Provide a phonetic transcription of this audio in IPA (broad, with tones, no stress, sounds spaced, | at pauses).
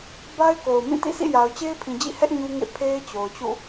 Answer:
b a˦ ɪ̯ k o˨ ʊ̯ m ĩ˦˨ t ḭ˦˨ sʰ ḭ˦˨ j a˨ ʊ̯ t͡ɕ e˦ ɪ̯ pʰ ĩ˨ d͡ʑ ḭ˦˨ h ɛ˦ ʔ ɲ u˦ ŋ ḛ˦˨ pʰ e˦ ɪ̯ t͡ɕ o˨ ʊ̯ t͡ɕ ṵ˦˨